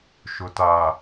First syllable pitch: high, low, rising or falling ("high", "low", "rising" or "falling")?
low